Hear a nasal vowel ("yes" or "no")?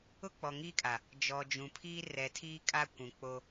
yes